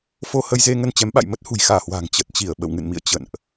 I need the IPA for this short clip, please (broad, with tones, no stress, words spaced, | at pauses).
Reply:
fo˧ hə˧jze˧ ŋə˧nt͡ɕɛ˨˦mɓa̰˧˨j mə˦˥t̚hṳ˨˩jxaː˧˩hwa̤ː˨˩ŋ t͡ɕə˨˩t̚t͡ɕi˧˩ə̯ ɓə̰˧˨wŋɨ̰˧˨nmḭ˧˨ə̯ t͡ɕə̰˧˨nʔ